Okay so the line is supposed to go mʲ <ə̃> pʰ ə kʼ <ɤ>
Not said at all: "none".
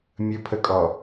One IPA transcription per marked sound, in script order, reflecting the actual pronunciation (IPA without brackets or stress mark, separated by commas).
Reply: ə, ɔ